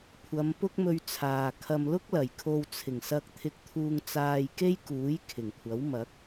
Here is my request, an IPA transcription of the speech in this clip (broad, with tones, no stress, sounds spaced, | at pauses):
kʷʰ ɐ˨˧ m p ʊ˥ k̚ m ɵ˧ ɥ t͡sʰ aː˨ kʰ ɐ˧ m l ʊ˥ k̚ l ɐ˨˩ j kʰ o˧ w t͡sʰ ɪ˨˩ ŋ s ɐ˧ k̚ t̪ʰ ɪ˧ k̚ t̪ʰ uː˧ ŋ t͡s aː˧ j k e˥ j k uː˨˥ j kʰ ɪ˨˩ ŋ kʷʰ ɐ˨˥ w m ɐ˨˥ k̚